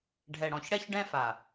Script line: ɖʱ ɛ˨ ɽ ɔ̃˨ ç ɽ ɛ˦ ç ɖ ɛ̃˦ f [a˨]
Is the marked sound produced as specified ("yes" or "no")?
yes